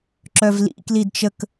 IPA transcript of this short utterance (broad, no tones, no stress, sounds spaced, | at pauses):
ǁ œ v l ḭ k l i d t͡ʃ ə k